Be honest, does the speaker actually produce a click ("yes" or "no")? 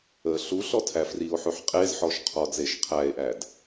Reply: no